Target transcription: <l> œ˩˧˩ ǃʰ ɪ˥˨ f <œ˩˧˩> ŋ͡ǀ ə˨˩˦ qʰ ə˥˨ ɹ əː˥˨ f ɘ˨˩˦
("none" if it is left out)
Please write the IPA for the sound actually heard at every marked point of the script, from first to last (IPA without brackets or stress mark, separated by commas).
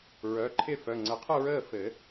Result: ɹ, œ˩˧˩